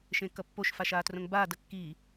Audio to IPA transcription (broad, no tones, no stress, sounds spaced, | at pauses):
ʃ ẽ k ʌ pː o ʃ f a ʃ aː t r õ ŋ b aː d ʌ kː i